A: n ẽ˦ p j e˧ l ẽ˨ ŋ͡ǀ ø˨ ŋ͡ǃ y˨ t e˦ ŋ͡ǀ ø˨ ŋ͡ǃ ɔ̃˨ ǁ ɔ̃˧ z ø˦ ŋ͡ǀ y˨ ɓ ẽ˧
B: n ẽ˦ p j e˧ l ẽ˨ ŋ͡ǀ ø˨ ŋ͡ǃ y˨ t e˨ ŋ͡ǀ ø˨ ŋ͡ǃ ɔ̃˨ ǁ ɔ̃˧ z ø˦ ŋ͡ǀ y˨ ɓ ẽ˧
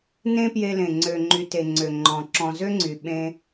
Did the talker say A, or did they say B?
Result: B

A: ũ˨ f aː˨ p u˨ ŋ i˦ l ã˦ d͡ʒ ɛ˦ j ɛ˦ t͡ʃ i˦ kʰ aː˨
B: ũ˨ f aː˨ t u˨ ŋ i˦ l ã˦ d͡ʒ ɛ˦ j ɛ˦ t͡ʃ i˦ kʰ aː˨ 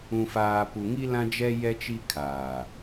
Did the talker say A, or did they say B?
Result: A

